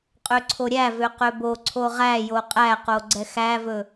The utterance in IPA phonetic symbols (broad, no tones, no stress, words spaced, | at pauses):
qʼøǀʰoɾʲævø qøboǀʰo ʁæjo qʼæqo ɡ͡ǀɛxævɵ